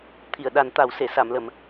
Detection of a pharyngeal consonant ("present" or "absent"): absent